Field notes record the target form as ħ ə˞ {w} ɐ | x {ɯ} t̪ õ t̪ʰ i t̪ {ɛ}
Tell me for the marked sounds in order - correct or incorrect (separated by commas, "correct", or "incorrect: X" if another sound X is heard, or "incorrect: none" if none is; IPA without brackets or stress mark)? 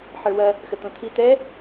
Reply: correct, incorrect: ə, correct